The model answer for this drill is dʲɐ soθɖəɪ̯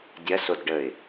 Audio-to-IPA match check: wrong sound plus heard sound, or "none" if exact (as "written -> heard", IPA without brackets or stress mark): θ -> d